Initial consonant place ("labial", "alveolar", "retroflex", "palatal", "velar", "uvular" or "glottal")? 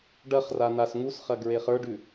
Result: retroflex